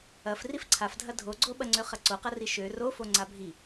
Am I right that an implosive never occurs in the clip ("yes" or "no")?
no